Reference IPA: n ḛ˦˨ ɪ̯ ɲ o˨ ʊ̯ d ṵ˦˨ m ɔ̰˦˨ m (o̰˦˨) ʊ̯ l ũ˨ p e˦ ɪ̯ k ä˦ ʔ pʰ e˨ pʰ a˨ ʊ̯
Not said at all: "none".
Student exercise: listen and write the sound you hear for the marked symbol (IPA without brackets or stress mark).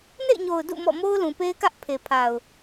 o˦